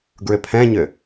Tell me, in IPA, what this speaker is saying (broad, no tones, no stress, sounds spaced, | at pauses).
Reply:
ɡ ɹ ʏ pʰ ɛ̃ ɲ ʏ